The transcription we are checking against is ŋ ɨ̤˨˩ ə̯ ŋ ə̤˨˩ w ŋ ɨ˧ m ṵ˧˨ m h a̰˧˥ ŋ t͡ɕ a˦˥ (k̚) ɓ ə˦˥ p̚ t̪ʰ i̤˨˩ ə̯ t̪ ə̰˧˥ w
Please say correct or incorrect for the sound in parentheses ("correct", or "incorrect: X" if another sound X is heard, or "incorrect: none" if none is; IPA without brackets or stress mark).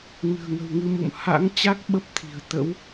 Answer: correct